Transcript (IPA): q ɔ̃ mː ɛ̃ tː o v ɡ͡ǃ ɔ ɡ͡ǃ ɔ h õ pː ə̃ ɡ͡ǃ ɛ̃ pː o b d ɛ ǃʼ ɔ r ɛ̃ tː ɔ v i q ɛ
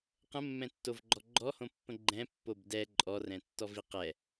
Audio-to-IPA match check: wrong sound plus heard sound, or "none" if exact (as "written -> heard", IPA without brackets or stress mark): ɔ̃ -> ə̃